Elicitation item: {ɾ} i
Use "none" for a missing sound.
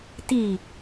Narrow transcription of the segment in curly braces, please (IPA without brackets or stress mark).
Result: t